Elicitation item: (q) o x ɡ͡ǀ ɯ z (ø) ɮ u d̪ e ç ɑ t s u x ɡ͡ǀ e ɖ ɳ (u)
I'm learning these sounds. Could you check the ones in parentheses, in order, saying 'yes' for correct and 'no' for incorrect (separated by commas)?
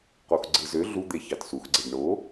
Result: yes, yes, no